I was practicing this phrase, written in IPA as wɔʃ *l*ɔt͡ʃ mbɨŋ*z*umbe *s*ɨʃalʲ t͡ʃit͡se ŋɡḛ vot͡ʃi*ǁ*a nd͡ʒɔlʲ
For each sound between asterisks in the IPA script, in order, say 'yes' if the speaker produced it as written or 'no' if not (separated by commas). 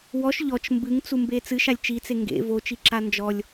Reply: no, no, no, yes